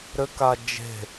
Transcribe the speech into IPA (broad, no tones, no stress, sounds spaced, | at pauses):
ɾ ɘ k a d͡ʒ e̤